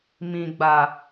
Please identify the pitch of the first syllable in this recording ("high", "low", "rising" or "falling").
low